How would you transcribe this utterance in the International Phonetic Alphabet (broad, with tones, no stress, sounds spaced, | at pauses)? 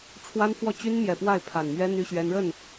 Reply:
ʈ͡ʂʰ w a˦ n f w ɔ˥˨ t͡ɕ y˦ n m j ɛ˨˩ p w a˥˨ ɪ̯ pʰ a˨˩ n m ɥ ɛ˦ n̪ y˦ ɕ ɥ ɛ˦ n ɻ ə˥˨ n